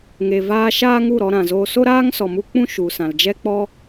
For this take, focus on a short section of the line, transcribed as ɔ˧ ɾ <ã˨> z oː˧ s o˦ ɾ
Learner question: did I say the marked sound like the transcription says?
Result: yes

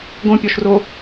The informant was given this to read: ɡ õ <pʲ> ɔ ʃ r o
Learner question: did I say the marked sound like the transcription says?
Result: yes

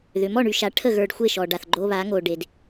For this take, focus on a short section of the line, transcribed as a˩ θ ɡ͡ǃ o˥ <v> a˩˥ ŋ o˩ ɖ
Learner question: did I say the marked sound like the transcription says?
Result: no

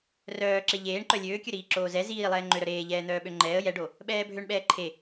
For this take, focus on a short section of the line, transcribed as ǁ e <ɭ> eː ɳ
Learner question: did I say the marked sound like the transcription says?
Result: no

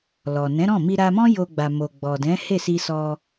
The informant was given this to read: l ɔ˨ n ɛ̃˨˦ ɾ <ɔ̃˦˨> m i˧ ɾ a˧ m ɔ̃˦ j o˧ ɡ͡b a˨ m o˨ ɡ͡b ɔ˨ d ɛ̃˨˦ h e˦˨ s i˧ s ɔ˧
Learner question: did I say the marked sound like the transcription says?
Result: yes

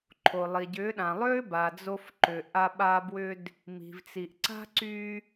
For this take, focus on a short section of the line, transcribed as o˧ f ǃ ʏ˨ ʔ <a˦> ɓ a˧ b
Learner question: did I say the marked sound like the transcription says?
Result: no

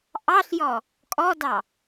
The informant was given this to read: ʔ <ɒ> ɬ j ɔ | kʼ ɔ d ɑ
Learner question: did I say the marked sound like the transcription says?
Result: no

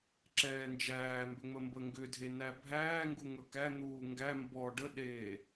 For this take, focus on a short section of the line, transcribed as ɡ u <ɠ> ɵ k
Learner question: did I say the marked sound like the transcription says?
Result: no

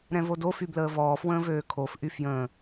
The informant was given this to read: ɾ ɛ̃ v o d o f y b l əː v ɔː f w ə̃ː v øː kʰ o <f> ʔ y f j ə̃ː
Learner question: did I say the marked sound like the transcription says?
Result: yes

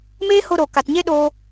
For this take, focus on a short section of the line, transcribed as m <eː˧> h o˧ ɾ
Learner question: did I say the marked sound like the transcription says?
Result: no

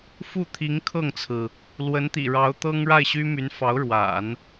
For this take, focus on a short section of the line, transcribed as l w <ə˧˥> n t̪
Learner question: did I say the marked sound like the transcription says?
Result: yes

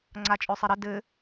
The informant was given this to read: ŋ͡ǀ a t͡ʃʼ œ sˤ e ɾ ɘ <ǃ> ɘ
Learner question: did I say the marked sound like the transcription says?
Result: no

